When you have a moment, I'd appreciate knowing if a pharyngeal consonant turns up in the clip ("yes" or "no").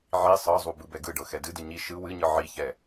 yes